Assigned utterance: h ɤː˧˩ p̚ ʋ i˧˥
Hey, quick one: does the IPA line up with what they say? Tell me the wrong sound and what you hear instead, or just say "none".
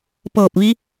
h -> p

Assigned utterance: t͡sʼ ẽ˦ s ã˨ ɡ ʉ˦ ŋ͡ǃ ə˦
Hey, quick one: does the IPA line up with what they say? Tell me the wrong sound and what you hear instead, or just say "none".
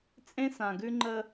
none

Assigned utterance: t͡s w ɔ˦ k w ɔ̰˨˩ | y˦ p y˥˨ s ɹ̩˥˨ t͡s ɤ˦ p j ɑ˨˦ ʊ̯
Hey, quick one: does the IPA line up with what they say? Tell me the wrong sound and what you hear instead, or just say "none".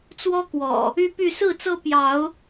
none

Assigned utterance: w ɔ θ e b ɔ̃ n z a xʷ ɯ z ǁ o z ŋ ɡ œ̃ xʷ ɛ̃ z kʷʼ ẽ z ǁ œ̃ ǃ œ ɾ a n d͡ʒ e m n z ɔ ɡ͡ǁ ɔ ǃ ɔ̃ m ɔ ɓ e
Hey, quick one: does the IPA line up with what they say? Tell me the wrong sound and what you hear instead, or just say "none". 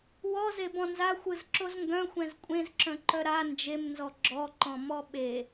θ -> z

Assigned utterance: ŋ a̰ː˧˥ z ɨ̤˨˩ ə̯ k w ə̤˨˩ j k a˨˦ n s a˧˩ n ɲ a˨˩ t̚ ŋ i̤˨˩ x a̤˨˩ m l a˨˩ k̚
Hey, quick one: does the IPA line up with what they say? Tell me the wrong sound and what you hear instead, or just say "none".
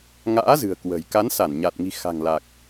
m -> ŋ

